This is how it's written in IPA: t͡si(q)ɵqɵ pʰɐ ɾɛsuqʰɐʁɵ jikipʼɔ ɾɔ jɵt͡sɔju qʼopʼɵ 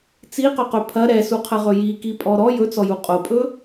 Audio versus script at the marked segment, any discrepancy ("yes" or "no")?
no